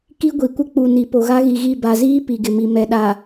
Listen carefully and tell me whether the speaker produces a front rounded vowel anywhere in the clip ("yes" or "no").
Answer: no